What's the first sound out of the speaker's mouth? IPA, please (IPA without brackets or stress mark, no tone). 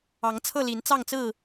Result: ɑ